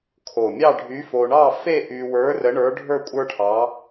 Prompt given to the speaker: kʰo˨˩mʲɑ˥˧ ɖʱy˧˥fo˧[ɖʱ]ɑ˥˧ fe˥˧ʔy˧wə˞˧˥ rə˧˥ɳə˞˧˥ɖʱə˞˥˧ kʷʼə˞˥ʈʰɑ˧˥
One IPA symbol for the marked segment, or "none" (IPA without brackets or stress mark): ɳ